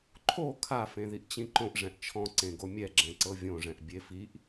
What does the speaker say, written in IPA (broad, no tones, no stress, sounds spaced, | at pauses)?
ǃʰ o kʰ a f ẽ ð i ʔ t͡ɕ ĩ ǃ õ ʔ ʐ ɛ̃ ʔ t͡ʃʰ ɔ̃ ǀ ẽ ɡ o mʲ ɛ ɡ͡ǁ ɛ̃ ǀ ɤ vʲ õ ʐ ɛ̃ ʔ bʲ e f i ʔ